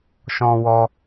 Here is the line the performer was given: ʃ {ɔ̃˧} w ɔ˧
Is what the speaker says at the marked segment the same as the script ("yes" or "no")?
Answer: yes